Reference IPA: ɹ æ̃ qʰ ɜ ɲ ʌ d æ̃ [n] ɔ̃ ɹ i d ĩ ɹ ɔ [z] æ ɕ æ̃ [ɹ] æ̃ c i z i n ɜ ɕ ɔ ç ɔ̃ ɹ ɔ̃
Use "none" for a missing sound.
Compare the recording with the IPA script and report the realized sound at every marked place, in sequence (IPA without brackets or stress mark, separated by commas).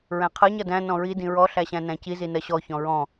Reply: n, ɬ, n